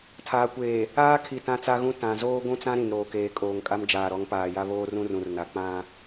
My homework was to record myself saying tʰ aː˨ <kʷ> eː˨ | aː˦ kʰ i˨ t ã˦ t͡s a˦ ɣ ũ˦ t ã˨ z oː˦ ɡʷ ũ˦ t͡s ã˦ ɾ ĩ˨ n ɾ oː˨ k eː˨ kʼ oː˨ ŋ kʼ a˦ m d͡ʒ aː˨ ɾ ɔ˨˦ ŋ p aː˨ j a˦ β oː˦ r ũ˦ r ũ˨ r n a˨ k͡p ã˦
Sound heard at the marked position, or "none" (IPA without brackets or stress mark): kʷ